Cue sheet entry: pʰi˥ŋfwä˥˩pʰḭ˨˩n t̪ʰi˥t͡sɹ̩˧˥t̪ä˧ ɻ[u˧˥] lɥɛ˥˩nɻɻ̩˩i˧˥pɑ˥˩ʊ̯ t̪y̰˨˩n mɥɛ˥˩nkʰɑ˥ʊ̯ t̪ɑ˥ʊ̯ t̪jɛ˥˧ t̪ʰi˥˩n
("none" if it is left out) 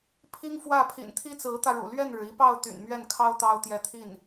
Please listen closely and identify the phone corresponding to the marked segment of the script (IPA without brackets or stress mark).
ṵ˨˩